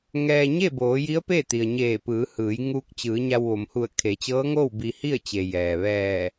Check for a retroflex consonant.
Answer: absent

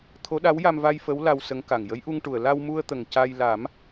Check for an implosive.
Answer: present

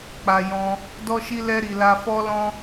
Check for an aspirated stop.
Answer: absent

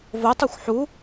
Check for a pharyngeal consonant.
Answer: present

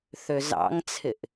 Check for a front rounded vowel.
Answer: present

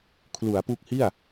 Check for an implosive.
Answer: absent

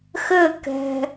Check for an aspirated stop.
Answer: absent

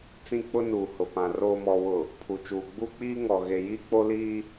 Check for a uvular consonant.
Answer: absent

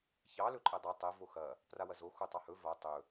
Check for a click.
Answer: present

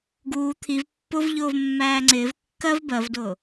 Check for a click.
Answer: present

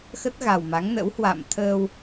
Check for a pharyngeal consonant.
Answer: absent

